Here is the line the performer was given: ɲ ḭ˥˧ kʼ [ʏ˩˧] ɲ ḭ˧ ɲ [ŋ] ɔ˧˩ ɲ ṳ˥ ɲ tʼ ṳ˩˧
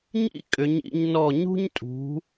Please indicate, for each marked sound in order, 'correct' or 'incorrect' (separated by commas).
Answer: correct, incorrect